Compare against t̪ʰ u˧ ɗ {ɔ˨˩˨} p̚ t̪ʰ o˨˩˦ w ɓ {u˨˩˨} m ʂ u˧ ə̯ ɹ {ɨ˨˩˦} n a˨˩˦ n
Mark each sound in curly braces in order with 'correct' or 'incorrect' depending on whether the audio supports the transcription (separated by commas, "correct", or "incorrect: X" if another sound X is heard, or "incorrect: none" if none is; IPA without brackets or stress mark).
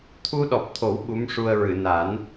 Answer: incorrect: ɔ˨˩, incorrect: u˧˥, incorrect: ɨ˨˩˨